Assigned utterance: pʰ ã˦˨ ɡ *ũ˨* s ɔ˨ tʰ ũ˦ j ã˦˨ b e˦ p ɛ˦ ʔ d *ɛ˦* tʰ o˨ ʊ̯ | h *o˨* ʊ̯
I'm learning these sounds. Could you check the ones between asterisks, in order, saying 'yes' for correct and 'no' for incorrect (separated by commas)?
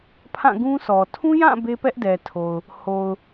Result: no, no, yes